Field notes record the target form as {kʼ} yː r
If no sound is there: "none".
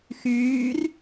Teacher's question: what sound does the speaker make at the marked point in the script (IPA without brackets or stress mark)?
x